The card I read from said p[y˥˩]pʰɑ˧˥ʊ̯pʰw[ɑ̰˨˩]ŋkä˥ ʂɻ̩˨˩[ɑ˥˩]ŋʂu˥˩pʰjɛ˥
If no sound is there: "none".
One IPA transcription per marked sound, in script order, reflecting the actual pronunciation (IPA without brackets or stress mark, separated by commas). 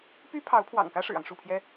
y˥, ɑ̰˨˩, ɑ˦